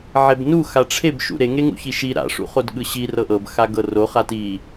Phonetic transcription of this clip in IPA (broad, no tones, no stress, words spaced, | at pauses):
ʕebnu xaʈ͡ʂʰebʃṵ ɾeŋeŋṵ çiʃi ɾa̰ʂṵχod ɠɯɕi rɤʔɤb xaɡɤro χati